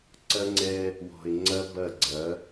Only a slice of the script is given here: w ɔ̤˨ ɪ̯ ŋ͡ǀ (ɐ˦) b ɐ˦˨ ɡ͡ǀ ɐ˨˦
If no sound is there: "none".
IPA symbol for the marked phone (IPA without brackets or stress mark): ɐ˦